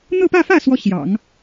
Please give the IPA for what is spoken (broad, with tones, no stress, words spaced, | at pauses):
n̪ɤ˥˧pä˥˧fä˥˩ swɔ˥ɕjɑ̰˨˩˦ŋ